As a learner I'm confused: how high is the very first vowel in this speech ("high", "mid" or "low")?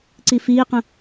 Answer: high